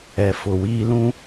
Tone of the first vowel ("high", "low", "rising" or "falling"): low